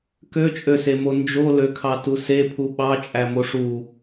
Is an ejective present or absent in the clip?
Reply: present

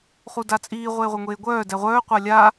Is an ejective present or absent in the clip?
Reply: present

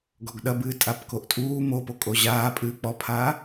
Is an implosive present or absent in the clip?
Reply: present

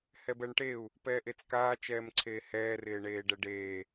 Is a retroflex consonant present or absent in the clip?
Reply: present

